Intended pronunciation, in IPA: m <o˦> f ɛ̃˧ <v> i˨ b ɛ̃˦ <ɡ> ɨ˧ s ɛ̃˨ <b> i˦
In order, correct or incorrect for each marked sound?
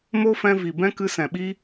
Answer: correct, correct, incorrect: k, incorrect: ɓ

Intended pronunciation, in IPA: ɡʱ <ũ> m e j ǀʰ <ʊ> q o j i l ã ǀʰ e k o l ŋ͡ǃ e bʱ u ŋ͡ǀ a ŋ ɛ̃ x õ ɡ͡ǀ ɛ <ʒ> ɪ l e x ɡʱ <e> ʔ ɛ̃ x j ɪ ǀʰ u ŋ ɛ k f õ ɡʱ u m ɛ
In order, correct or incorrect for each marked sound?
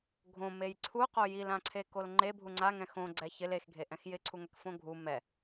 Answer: incorrect: õ, incorrect: u, incorrect: ç, correct

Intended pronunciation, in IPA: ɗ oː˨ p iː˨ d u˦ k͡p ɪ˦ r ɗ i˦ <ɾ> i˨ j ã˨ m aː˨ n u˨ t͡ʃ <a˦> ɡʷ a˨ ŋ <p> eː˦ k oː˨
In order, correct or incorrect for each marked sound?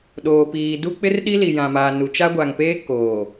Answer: incorrect: l, correct, correct

